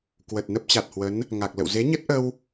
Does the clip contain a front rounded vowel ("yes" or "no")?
no